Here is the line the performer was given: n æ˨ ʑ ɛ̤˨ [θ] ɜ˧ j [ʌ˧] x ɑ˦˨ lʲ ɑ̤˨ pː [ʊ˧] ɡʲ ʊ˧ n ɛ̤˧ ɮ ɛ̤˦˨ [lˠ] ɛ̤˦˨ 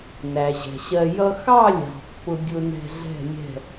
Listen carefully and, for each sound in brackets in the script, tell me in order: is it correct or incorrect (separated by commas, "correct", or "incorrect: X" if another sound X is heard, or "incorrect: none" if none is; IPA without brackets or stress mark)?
incorrect: ɕ, correct, correct, incorrect: lʲ